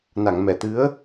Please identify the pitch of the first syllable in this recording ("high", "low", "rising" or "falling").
low